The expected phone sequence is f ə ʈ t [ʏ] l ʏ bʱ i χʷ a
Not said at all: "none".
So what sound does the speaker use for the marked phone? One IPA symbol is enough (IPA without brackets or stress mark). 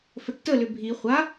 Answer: ə